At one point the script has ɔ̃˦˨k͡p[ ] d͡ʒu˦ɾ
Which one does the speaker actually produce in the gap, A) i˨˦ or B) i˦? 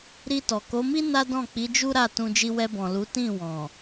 A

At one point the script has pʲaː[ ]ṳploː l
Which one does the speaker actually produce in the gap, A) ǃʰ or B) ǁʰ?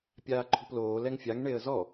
A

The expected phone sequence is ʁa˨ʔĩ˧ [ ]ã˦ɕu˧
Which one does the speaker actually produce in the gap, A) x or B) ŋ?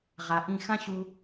A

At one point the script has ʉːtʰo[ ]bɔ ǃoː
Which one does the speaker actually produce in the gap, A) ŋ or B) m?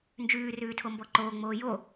B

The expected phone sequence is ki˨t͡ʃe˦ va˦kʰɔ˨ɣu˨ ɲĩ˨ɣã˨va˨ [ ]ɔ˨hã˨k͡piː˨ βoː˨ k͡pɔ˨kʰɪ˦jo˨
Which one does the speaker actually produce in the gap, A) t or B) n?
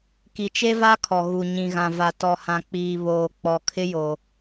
A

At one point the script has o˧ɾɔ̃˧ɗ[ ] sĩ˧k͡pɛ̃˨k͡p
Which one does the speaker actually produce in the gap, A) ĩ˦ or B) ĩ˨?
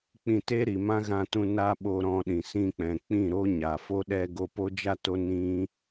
B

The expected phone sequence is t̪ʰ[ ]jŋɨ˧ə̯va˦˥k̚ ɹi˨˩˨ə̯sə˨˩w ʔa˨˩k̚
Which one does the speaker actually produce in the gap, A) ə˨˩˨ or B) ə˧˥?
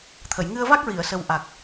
A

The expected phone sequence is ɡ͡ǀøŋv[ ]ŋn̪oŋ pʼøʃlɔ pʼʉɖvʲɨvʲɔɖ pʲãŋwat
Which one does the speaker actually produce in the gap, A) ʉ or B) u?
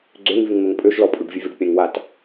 A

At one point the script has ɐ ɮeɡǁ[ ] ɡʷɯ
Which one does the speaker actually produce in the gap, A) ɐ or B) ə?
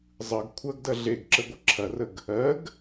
B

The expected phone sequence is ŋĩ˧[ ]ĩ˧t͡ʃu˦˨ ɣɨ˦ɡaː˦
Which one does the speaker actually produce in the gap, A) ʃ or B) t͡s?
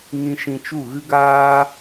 A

